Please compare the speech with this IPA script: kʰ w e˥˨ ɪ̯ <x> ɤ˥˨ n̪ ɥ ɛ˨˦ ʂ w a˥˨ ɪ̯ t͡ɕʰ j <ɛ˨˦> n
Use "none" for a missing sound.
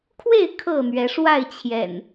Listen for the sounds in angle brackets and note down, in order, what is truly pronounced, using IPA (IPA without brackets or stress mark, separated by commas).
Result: kʰ, ɛ̰˨˩